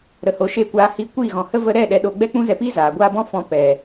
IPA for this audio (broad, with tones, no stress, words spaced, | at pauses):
ɾə˨ho˨ʃeː˧ kʷaː˧ hiː˧kʷiː˦˨ɣɔ̃˨hə˦ və˧ɾɛ˦˨ ɗɛ˧ɗo˧ ɡ͡bɛ˦k͡pũ˦zɛ˧piː˦ zaː˨ɡʷaː˦ bɔ̃˦fɔ̃˧ pɛ˨